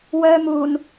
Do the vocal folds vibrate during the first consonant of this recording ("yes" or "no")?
yes